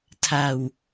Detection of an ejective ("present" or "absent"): absent